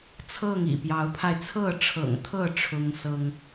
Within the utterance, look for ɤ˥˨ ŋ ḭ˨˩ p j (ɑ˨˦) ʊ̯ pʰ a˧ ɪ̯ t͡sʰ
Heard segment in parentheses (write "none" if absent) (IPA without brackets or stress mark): ɑ˨˦